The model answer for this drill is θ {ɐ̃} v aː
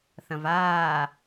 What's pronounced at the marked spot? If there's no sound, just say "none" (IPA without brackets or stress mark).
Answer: ɐ̃